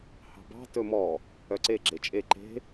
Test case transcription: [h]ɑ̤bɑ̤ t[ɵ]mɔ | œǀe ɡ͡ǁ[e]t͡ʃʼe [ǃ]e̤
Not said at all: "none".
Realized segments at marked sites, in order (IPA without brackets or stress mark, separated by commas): h, ɵ, e, ǃ